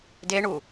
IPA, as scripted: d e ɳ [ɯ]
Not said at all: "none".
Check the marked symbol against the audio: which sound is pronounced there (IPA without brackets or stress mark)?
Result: u